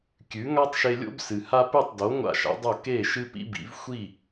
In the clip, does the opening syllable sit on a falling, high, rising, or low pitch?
rising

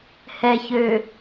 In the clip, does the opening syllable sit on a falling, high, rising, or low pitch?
low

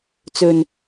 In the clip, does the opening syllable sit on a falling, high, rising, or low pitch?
low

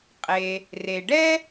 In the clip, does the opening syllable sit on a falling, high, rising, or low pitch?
low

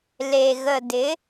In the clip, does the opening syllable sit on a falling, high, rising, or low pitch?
low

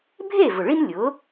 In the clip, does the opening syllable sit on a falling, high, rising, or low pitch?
falling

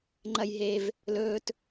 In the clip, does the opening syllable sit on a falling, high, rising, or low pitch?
low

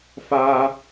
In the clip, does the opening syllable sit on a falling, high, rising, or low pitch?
high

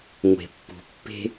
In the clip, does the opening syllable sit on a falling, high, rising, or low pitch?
low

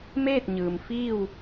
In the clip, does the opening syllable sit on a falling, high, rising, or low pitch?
falling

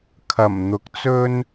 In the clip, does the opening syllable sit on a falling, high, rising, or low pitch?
low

